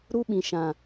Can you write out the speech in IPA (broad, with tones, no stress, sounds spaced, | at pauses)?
ɾ u˦ ɓ ĩ˨ ʃ ã˨